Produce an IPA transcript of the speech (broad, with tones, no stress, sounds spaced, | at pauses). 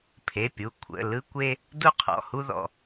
pʰ e˩˧˩ pʲ u˩˧˩ kʷʰ ə̰˩˧˩ l ɯ˥ kʷ e˥ | d u˥ qʰ ɔ̰˩˧˩ h u˥ ð ɔ̰˩˧˩